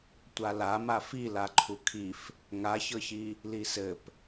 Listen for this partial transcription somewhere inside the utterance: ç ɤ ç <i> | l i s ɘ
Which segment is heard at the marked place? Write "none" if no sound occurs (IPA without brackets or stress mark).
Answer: i